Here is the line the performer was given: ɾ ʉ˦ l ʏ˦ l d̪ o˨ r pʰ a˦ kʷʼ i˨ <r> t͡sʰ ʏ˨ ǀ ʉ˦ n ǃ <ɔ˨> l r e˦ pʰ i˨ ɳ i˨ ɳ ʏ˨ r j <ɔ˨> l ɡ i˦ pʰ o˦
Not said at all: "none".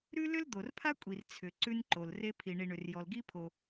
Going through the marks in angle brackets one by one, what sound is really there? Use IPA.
r, o˨, ɔ˨

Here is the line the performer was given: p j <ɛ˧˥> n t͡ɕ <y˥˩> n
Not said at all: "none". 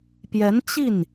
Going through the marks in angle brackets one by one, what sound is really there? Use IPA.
ɛ˧˥, i˥˩

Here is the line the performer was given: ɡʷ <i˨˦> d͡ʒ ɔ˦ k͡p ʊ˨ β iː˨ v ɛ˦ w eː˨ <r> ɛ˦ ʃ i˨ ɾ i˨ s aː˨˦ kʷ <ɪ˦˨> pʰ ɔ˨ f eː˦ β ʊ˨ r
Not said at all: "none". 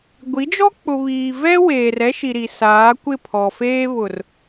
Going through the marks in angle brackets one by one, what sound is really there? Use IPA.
i˨˦, r, ɪ˦˨

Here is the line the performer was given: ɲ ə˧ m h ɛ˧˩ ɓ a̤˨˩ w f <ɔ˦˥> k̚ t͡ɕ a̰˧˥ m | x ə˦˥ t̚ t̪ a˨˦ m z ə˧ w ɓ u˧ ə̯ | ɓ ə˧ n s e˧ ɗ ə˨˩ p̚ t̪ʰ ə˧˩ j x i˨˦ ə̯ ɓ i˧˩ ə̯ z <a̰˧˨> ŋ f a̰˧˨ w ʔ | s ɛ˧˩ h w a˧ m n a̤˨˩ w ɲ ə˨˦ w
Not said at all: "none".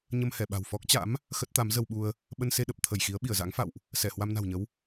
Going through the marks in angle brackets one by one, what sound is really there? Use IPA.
ɔ˦˥, a̰˧˥

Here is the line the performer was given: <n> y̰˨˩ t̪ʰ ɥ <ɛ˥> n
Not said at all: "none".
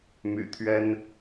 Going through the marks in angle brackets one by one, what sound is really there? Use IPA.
m, ɛ˥

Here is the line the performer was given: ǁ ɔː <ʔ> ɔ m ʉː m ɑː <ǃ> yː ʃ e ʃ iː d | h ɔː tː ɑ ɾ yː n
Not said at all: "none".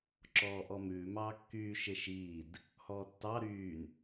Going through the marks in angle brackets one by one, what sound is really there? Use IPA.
ʔ, kː

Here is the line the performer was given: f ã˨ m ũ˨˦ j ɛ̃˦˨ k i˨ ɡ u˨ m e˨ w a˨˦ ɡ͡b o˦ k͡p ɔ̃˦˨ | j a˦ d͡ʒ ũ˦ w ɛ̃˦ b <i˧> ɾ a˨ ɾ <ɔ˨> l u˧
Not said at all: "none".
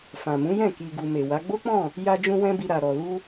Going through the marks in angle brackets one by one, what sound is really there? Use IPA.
i˧, ɔ˨

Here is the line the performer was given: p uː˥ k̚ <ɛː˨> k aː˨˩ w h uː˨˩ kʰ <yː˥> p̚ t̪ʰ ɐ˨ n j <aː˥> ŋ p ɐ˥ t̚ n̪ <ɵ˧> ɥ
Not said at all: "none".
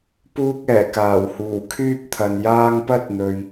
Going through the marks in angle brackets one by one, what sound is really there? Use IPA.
ɛː˨˩, yː˥, aː˥, ɵ˨

